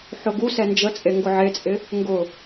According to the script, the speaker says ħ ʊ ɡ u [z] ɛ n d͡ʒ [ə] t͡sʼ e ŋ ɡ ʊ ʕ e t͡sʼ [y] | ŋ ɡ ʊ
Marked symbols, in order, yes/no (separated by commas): no, yes, no